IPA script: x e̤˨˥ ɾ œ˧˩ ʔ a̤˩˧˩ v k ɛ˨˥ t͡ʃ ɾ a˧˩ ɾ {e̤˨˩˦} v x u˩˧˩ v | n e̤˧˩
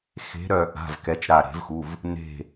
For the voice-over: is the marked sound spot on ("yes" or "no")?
yes